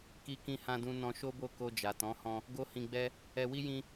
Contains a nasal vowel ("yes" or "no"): yes